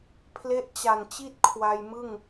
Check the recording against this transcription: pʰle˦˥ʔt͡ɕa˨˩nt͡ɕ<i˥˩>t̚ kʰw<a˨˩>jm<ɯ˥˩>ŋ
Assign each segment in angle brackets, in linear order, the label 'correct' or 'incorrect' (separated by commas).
correct, incorrect, correct